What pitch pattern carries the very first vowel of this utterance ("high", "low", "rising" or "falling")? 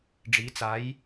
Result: rising